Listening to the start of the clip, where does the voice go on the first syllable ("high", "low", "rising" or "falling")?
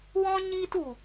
high